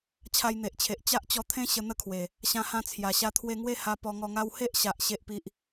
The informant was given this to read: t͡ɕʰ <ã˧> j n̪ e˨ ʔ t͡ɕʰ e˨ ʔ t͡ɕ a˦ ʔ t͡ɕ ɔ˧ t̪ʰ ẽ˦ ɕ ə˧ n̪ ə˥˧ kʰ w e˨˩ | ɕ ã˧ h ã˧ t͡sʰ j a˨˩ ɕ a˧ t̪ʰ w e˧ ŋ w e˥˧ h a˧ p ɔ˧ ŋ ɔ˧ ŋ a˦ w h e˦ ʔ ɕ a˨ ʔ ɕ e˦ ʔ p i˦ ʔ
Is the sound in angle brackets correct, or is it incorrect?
incorrect